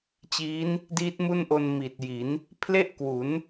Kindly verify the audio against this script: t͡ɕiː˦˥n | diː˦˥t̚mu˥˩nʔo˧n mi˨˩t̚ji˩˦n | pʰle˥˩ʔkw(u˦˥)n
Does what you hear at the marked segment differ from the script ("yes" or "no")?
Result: yes